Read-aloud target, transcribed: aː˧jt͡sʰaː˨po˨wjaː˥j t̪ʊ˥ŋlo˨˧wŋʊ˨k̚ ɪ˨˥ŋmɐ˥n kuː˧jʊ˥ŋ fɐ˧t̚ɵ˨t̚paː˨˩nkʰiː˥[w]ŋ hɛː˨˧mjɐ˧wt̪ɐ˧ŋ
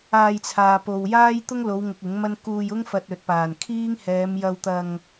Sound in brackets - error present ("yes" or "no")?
yes